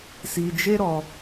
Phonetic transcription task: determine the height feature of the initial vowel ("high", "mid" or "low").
high